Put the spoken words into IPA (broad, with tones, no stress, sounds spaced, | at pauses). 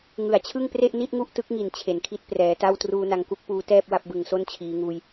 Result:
ŋ ɯ˨˩ a̯ t͡ɕʰ ɯ˥˩ ŋ p r e˥˩ ʔ n i˥˩ t̚ ŋ u˥˩ ʔ t ɯ˦˥ k̚ ŋ i˨˩ n t͡ɕʰ e˩˦ n kʰ i˦˥ t̚ p r ɛː˩˦ t a˥˩ w t r uː˧ n a˧ ŋ k u˥˩ k̚ p uː˦˥ t ɛː˥˩ p̚ w a˥˩ p̚ b ɯ˨˩ ŋ s o˥˩ n t͡ɕʰ iː˩˦ ŋ uː˧ j